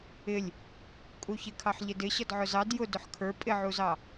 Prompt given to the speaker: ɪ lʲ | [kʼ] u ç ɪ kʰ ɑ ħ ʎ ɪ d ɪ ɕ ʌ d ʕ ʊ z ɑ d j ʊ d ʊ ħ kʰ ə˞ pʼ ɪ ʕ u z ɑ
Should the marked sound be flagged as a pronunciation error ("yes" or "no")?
no